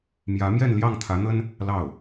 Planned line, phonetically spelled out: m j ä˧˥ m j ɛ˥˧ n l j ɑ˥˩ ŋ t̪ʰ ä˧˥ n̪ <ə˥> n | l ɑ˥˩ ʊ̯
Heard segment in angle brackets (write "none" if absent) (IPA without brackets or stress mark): ə˥